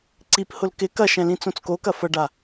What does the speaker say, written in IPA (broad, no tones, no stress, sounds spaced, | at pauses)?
ǀ i p h ʊ l k ɪ k ɐ ʃ ɛ̃ l ĩ t͡s õ t͡s k o k ɐ f ɐ ɖ a